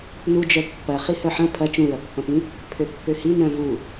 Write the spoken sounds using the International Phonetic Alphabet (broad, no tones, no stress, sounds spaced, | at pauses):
n u d͡ʒ œ pː ɐ χ i h œ ħ ɐ̃ pʰ ɐ t͡ʃ ũ ɹ ɐ pː ɐ̃ p ĩ | pʰ ø pː ø h i n œ̃ v u